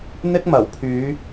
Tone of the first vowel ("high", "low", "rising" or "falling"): high